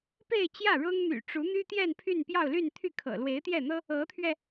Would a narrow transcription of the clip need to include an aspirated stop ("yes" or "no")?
yes